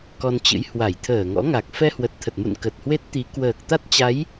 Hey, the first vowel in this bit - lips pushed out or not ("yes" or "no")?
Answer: yes